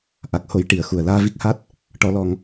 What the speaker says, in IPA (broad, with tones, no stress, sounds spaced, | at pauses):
ʔ a˨˩ k̚ h o˨˩˦ j ʈ i˨˩˨ ə̯ x u˨˩ ə̯ l aː˧ v i˦˥ k̚ h a˦˥ t̚ | ʈ ɔ˨˩˨ l ɔ˨˩˨ ŋ